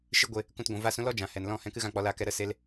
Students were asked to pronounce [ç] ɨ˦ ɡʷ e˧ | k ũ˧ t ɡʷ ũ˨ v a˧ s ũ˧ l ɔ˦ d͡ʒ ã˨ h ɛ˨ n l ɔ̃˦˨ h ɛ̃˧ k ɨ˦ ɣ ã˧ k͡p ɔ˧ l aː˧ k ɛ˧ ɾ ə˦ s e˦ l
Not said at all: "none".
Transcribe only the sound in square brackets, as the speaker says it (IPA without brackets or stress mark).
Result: ʃ